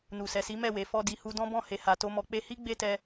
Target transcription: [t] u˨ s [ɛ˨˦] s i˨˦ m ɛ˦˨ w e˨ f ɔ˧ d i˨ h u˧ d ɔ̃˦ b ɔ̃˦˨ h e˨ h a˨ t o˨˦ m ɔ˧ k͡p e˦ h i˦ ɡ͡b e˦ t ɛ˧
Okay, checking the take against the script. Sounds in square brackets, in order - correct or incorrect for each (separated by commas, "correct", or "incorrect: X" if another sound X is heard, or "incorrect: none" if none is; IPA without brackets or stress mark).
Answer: incorrect: n, incorrect: ɛ˨